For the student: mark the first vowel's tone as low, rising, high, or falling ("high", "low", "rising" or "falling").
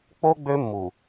high